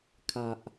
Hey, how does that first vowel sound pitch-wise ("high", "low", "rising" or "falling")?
low